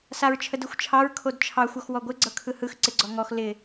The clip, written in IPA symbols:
saɹt͡ʃʰədɯxʷt͡ʃʰɑɹ kʰodt͡ʃʰɑxʷ ɔxwɔɡʷɪ ɡ͡ǀɤkʰɯhɯx ǀɪɡ͡ǀɔŋɔx lɪ

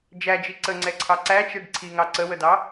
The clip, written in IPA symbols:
d͡ʒæd͡ʒi ǀəŋ͡ǀɛǀʰɑ ǀæt͡ʃɛɖ ǀʰiŋɑ ǀəwədɑ

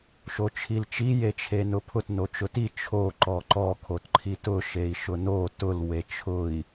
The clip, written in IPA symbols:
ʃot͡ʃʰilt͡ʃi jet͡ʃʰenʊpʰʊt not͡ʃʊti t͡ʃʰo ǃɔǃɔ kʰotǃʰitʊ ʃei̯ʃʊno tʊl wet͡ʃʰʊi̯

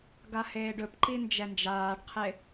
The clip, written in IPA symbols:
ɡaheːɖɵpǃi nd͡ʒɛnd͡ʒaːɖqʰe

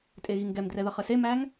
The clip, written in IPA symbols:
tʼeɣiŋɡɛmdrɛ ðʌχəsemæŋ

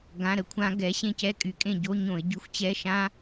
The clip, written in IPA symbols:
ɡã˧˥˧ɾə˦˨kʷʰã˦˥ ɡɛ˨˥ɕẽ˦˨cɛ˦˥kʼy˩˧ kʼẽ˦˨ɟo˧˥˧ɲõ˧˩˧ɪ̯ɟy˨˥xʷ t͡ɕɛ˧˥˧ ʃã˦˥

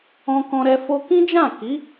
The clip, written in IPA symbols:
ɔ̃˧kɔ̃˧ɾɛ˧ fo˧kĩ˦d͡ʒã˦˨ ki˨˦

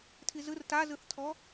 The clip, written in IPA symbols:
tʰizɯr tazɯθtʰɔ

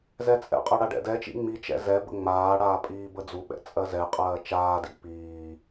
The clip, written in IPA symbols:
zɛt͡sʼɛ̰qʼɜ ɽaɖɛ̰dɛt͡ʃḭ ŋ͡mit͡ʃɛ̰ zɛ bə̰ŋ͡maːɽaː pʼiːbəd͡zuɓɛ̰ t͡sʼɜzɛqʼɜː t͡ʃaːdḭ piː

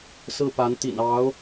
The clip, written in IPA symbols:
sɹ̩˥˩pa˧˥nt̪ḭ˨˩n ɑ˧˥ʊ̯

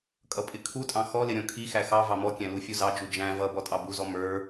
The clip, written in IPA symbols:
kʼʌpʼɪkʰutʼɑ̃ xɔlɪ ɾʲɔ̃kʰixæ xɑ vɑmɔkʲæ̃ lufʲuzɑd͡ʒu d͡ʒæ̃ vʌbɔ tʼɑbuzɔ mə˞

